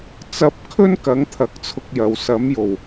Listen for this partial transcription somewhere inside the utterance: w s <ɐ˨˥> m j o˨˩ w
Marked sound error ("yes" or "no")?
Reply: no